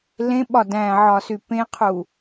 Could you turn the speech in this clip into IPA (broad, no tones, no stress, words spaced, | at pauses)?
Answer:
lẽɓɒ dæ̃ʕɒsy pẽqʰu